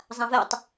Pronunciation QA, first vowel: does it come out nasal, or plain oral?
nasal